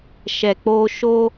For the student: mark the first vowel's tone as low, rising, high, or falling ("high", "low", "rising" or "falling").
low